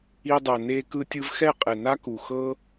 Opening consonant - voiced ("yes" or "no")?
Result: yes